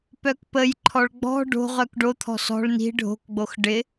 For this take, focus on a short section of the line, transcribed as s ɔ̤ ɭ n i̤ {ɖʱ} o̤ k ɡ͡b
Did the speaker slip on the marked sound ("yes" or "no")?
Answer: no